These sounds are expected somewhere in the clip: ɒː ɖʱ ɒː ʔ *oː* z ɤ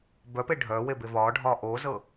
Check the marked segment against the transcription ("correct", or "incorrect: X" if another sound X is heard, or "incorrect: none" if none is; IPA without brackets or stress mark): correct